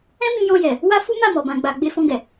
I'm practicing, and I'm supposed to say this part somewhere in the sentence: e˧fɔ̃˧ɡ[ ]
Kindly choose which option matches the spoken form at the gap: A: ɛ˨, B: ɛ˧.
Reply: A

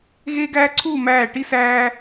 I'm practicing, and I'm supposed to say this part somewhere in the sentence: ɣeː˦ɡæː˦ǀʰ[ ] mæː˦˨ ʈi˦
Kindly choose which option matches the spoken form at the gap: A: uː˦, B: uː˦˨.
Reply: B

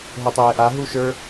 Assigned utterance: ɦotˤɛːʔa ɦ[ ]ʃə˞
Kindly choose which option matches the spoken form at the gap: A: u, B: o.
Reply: A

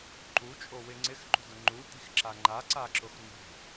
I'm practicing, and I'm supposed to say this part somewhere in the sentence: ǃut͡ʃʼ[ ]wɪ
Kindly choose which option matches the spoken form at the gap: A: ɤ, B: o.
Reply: B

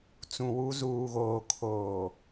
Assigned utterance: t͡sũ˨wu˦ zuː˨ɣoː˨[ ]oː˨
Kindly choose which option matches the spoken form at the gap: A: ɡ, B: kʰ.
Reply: B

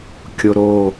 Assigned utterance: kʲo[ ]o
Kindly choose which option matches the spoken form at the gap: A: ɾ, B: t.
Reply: A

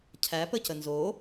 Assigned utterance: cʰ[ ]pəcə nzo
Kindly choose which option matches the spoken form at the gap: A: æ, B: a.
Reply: A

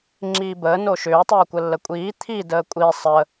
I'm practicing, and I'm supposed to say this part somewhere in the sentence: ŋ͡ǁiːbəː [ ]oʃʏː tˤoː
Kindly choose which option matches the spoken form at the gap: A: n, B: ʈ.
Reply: A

